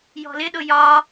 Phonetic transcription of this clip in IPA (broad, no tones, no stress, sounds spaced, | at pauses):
j ɔ̤ l ɪ ɗ ʊ j ɒ